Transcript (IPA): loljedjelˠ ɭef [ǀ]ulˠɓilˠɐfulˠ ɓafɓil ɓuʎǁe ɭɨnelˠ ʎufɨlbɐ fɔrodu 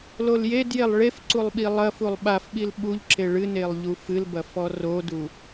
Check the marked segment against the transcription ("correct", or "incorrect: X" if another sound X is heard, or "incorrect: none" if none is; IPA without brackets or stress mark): correct